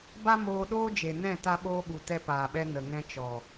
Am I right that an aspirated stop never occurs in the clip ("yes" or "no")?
yes